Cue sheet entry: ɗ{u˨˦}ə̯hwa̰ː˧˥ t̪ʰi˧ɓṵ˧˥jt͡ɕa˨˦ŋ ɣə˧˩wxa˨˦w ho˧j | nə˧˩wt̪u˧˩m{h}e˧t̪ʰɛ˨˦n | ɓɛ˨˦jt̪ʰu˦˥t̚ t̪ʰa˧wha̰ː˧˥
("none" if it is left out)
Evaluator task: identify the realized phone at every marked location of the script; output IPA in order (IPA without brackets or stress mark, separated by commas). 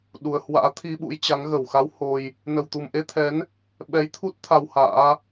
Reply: u˨˩, ʔ